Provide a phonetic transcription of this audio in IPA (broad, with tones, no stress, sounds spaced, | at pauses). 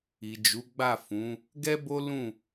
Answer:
i˨ d͡ʒ u˨˦ ɡ͡b a˦˨ f ũ˨˦ | ɡ ɛ˦ b o˦ l ũ˦˨